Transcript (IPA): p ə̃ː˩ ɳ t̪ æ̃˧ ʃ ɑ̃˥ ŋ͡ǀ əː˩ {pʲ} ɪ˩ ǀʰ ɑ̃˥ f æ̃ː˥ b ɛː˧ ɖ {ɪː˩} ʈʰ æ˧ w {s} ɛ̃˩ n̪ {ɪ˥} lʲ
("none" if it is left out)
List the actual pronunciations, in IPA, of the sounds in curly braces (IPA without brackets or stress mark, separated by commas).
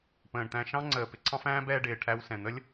p, ɪː˩, s, ə˥